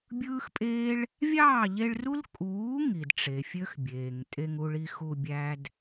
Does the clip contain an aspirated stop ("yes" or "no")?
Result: no